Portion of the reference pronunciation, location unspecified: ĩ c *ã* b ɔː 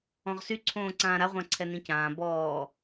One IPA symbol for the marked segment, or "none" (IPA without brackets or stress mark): ãː